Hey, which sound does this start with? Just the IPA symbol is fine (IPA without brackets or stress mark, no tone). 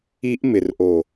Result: i